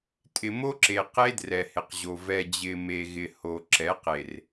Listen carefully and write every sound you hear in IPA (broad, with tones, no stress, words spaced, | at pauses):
tʼɪ˨mo˦ǁe˨ qe˦drɛ˨hɪ˨qʑo˨ vɛ˨d͡ʑɪ˨me˨ ɣɪ˨ ho˨ǁɛ˨˦qe˨r